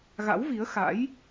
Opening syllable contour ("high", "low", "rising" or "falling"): rising